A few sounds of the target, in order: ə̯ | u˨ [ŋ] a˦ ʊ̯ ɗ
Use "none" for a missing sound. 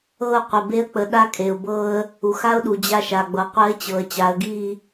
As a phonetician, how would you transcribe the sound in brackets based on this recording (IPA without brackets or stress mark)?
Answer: x